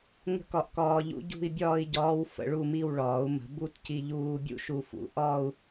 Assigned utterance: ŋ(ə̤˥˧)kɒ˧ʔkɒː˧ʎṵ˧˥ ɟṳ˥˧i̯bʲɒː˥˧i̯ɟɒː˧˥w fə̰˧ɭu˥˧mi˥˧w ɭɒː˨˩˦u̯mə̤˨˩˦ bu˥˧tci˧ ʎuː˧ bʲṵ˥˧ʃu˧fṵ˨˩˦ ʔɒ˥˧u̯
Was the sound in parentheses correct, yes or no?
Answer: yes